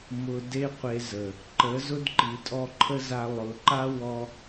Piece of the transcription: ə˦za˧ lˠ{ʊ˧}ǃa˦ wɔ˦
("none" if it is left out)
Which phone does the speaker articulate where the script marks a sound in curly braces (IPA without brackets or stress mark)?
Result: ʊ˨